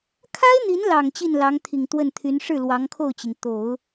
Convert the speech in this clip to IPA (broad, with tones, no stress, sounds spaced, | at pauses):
kʰ a˥ ɪ̯ n̪ i˧˥ n l ɑ˨˩ ŋ t͡ɕ i˥˩ n l ɑ˧˥ ŋ t̪ʰ i˨˩ ŋ t̪ w ə˥˩ n t̪ʰ y˧˥ n ʂ ɻ̩˥˩ l w ɑ˧˥ ŋ kʰ o˥˩ ʊ̯ t͡ɕ i˩ ŋ t̪ o˨˩˦ ʊ̯